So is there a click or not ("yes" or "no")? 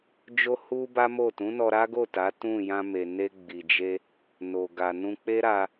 no